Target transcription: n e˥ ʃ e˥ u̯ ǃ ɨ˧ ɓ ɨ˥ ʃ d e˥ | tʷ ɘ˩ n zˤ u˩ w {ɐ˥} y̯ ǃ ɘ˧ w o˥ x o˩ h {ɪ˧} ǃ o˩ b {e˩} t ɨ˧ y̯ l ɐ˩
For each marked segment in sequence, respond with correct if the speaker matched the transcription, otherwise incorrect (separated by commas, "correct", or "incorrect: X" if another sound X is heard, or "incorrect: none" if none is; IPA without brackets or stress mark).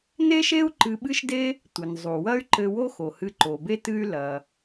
correct, incorrect: ɨ˧, incorrect: e˥